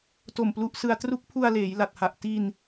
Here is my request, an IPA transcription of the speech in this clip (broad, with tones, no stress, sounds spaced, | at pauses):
t o˨˩ m p l u˦˥ ʔ s ɯ˧ a̯ t r u˦˥ k̚ pʰ u˧ a̯ l eː˩˦ j l a˨˩ t̚ h a˨˩ ʔ t i˧ n